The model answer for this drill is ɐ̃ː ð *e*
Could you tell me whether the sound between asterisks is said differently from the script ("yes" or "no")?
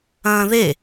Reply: no